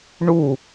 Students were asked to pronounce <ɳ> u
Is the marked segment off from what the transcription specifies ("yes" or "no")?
no